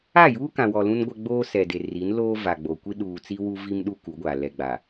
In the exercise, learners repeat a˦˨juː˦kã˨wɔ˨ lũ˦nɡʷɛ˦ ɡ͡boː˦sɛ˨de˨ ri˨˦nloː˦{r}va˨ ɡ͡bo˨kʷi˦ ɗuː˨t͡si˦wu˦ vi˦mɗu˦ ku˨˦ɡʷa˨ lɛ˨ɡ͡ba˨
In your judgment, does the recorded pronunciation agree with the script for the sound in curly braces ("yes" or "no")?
no